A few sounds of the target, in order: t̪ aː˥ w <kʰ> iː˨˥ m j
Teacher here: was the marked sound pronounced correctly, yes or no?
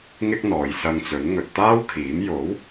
yes